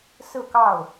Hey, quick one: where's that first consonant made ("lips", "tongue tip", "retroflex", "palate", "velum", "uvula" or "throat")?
tongue tip